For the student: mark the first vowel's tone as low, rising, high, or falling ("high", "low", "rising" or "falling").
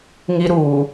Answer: high